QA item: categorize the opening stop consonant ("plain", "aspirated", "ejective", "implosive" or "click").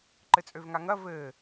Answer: click